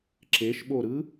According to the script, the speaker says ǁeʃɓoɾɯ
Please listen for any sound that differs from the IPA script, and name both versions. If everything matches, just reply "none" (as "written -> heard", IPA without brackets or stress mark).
none